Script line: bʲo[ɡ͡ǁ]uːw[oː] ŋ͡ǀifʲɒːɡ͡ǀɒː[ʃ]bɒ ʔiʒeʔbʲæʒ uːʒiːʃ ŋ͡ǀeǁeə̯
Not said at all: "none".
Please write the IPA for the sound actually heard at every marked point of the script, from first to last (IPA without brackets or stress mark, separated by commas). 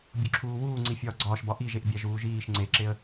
ǁʰ, uː, ʃ